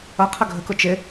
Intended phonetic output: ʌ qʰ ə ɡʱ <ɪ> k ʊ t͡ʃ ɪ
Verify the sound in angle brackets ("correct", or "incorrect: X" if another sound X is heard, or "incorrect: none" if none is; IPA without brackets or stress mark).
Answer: incorrect: ə